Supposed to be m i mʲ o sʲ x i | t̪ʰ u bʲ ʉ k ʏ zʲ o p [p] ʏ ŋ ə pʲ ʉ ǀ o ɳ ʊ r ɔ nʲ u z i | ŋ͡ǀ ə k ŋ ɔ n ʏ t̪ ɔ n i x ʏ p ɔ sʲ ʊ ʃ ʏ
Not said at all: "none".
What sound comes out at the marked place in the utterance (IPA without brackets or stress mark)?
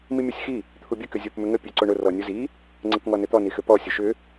m